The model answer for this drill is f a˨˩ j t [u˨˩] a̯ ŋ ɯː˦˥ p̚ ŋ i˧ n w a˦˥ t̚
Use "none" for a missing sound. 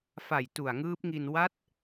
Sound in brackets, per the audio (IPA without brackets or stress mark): u˨˩